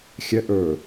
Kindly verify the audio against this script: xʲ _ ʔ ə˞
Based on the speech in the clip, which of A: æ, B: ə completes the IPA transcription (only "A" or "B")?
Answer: B